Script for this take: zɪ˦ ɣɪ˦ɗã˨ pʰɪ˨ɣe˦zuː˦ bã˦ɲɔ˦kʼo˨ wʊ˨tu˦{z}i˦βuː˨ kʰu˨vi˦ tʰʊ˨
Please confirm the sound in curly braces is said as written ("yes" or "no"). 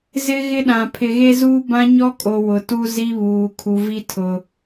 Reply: yes